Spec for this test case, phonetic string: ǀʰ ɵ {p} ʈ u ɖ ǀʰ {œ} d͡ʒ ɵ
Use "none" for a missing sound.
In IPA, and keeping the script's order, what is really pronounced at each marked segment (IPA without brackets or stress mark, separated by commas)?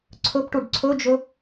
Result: p, ɵ